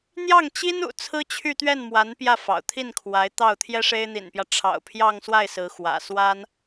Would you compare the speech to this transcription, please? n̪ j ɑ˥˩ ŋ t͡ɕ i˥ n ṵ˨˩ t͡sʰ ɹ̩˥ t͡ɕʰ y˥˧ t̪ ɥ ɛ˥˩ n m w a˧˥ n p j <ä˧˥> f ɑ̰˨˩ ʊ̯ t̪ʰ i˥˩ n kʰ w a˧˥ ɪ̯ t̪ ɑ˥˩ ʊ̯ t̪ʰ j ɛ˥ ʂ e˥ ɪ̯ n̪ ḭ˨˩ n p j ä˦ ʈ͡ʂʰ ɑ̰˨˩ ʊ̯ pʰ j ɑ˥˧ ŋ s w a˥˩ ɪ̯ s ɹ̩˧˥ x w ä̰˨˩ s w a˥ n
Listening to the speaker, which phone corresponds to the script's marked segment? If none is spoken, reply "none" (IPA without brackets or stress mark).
ä˥˩